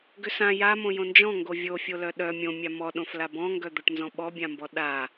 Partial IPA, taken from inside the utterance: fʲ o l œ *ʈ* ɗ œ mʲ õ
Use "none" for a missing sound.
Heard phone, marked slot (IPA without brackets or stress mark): none